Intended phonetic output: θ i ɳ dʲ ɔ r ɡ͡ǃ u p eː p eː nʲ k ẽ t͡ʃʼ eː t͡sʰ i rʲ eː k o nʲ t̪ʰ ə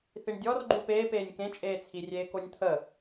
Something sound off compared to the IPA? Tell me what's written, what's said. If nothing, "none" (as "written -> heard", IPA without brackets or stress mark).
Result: none